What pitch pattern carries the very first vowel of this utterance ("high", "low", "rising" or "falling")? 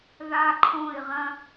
high